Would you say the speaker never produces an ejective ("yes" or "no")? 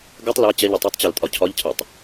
no